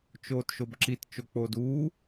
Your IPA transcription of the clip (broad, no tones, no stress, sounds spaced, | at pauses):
t͡ʃ oː t ʃ o b ǁ i t t͡ʃ o k͡p oː d uː